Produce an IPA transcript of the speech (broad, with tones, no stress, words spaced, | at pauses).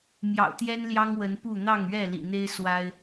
mjɑ̰˨˩ʊ̯t̪jɛ˦n ljɑ˦ŋwə˨˦npu˥˨ n̪ɑ˥˨ŋɥɛ˥˨lḭ˨˩n̪e˦ɪ̯ swa˦ɪ̯